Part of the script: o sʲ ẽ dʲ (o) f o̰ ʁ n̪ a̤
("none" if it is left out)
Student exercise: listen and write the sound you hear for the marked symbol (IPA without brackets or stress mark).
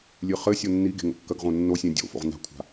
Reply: o̰